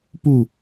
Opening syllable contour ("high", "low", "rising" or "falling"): falling